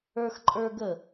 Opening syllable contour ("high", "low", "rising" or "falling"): high